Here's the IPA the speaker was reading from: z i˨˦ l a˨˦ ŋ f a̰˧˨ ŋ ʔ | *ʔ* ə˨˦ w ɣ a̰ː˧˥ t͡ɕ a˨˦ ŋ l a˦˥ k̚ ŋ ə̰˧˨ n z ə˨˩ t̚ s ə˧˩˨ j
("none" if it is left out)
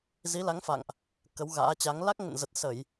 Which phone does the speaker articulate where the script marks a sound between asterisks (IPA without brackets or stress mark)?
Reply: k